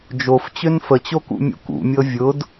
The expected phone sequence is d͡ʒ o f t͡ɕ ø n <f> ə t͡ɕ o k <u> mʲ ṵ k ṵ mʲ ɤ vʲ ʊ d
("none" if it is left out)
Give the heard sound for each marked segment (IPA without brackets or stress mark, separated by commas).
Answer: f, ṵ